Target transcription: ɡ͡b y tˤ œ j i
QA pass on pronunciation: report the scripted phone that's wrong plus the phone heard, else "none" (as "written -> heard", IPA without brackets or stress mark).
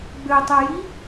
y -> ø